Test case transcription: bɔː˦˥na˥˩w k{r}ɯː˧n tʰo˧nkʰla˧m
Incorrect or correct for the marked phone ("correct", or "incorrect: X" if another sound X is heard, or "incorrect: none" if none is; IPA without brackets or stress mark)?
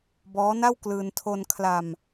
incorrect: l